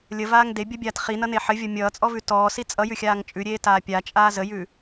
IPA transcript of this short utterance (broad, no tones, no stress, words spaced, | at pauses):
lʲəvaːŋ debʲʌbʲaːt χinʌne ħɘvʲɔ mʲʌːt͡sʼɔvʉ tɔːsi t͡sʼʌjʉxʲaːŋ t͡ʃʼʉɾʲeːtaː pʲat͡ʃʼaː zəjʉ